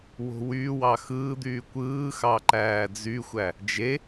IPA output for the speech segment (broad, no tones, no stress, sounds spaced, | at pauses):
w o̤ w yː w ɑ x ɯː d̪ yː kʷ ɯː x ɑ ǃ æː d͡z y xʷ æ | d͡ʒ e